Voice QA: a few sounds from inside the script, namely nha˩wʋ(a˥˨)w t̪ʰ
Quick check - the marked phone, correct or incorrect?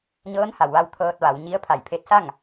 incorrect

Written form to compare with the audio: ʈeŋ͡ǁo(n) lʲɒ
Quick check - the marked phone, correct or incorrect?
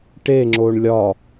incorrect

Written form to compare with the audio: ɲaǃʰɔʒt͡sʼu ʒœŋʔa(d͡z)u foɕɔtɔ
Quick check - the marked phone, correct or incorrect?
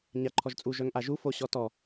incorrect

